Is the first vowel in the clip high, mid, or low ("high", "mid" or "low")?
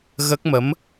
mid